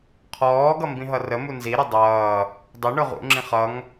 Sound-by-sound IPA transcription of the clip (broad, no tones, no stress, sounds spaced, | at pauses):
qʰ ɔː ɡ ʌ m b ĩ ɦ ʌ r ə m u n z i ɾ ə dˤ ʌː | dˤ ʊ ɳ ʊ ʁ ṵ ŋ͡ǁ ĩ χ ʌ ŋ